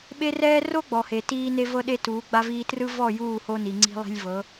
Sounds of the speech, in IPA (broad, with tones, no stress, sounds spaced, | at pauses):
ɓ e˦ r ɛː˦ r o˦ ɡ͡b ɔ˨ h e˨ t iː˦ n e˦ v ɤ˦ ɗ e˦ t uː˨˦ ɡ͡b a˦ v iː˦ t r ɯ˦ v ɔ˦˨ j uː˦˨ h o˦ n i˨ ŋ͡ǀ i̤˦ lˠ i̤˦ lʲ v ɤ˨˦